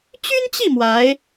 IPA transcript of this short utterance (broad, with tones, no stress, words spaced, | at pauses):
t͡ɕy˥nt͡ɕi˥˩ mwa˧˥ɪ̯